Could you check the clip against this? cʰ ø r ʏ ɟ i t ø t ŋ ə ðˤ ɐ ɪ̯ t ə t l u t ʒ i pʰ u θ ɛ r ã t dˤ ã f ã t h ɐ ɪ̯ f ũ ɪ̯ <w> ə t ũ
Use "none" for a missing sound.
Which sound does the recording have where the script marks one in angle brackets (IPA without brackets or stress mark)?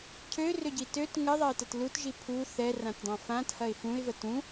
v